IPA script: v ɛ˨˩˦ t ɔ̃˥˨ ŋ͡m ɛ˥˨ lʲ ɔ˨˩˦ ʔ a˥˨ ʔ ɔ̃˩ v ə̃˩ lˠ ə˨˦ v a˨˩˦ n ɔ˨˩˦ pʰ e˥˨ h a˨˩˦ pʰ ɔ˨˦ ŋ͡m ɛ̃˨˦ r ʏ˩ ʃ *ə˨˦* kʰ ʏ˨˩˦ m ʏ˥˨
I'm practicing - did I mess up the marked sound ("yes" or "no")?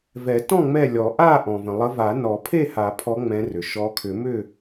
yes